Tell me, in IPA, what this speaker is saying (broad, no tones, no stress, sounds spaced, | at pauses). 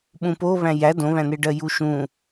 ɓ ũ p o β æ̃ j æ d õ β æ̃ n e ɖ ɜ j u ʃ ũ